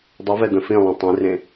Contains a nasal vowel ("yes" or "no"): yes